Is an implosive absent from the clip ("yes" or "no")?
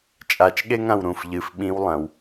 no